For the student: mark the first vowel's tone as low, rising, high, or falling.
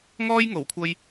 high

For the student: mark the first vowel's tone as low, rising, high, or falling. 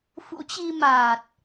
rising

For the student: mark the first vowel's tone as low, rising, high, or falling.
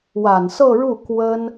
low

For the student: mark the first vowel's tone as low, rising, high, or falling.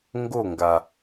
falling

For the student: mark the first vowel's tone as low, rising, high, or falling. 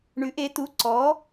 rising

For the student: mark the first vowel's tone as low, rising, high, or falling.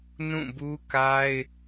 falling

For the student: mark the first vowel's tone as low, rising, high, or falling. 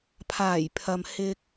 low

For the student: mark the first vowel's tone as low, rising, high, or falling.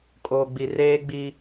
low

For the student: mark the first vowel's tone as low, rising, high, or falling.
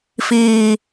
high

